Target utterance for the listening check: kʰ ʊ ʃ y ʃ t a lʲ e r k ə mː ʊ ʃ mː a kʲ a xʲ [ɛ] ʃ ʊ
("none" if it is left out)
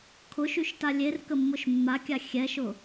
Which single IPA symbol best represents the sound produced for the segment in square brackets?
ɛ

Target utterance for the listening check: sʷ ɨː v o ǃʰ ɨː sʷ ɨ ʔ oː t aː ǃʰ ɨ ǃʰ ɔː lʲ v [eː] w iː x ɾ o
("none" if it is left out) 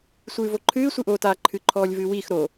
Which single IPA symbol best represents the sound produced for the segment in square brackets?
ɨː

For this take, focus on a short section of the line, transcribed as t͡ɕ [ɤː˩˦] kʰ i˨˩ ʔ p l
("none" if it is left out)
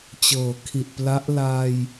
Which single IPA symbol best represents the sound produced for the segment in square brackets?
ɤː˩˦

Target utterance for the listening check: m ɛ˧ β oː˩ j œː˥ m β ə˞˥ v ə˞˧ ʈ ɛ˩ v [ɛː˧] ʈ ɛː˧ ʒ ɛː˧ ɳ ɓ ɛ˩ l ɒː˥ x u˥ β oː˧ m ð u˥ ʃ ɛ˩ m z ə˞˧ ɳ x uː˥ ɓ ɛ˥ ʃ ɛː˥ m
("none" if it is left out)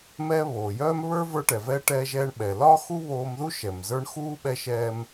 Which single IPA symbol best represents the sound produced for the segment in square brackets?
ɛː˧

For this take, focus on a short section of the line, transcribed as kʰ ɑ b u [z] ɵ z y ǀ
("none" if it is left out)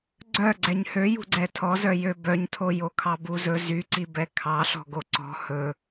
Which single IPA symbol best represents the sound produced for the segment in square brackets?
z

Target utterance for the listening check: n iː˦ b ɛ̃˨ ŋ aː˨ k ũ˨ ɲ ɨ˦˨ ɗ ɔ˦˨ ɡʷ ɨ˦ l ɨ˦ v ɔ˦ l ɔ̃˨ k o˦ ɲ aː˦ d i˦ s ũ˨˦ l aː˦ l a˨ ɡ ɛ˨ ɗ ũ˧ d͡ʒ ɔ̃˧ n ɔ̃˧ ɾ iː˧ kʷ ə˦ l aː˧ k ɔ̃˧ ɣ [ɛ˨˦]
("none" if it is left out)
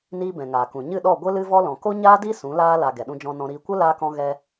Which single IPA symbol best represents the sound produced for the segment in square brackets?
ɛ˧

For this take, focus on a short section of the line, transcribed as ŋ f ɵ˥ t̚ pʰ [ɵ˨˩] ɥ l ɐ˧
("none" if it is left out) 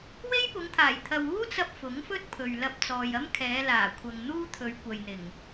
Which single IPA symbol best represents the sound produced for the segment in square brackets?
ɵ˨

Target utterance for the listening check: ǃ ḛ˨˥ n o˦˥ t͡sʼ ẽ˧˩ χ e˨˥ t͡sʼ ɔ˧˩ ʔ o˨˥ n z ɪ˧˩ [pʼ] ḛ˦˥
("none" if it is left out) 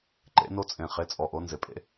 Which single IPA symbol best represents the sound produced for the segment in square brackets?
pʼ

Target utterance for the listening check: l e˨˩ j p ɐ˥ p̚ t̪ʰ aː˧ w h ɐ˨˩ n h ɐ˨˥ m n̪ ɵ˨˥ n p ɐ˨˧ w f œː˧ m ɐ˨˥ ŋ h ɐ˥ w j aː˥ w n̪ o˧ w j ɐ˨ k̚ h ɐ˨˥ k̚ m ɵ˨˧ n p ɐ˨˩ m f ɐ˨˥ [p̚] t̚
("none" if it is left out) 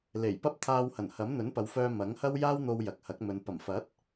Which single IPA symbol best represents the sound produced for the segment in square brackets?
none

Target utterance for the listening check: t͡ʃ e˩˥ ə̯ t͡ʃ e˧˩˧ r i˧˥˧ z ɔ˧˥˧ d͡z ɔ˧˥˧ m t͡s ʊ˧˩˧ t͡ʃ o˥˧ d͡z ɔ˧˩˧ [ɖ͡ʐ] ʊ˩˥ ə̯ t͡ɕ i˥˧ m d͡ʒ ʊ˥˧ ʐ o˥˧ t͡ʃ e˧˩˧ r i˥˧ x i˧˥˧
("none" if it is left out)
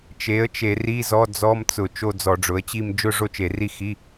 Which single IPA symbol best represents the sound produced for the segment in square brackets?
ɖ͡ʐ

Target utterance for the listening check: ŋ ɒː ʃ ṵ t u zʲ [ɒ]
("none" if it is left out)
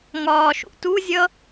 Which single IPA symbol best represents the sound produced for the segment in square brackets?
ʌ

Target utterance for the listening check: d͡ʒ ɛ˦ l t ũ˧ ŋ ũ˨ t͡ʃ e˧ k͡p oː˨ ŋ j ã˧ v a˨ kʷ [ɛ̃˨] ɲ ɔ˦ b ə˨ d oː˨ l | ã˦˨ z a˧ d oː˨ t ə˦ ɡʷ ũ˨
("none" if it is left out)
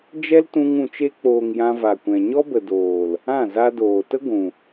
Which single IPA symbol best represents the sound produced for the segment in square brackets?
ɛ̃˨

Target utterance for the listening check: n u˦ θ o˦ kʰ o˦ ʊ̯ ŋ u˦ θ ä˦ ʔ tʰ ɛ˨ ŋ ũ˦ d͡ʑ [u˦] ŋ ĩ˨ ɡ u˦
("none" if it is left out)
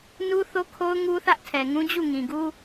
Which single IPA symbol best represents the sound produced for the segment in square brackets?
u˦˨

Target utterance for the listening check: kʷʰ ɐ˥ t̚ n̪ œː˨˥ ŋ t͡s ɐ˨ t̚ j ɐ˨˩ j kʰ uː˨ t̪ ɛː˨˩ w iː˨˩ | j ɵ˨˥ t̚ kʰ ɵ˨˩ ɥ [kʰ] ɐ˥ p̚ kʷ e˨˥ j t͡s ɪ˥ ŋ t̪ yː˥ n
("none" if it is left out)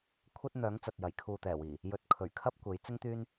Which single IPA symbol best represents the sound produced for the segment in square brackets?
kʰ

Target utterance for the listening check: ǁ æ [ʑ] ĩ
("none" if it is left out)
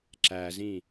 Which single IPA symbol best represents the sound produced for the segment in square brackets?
z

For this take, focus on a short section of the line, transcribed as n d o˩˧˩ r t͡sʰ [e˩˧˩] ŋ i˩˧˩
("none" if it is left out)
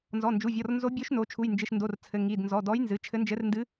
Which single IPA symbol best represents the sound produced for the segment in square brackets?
ɘ˩˧˩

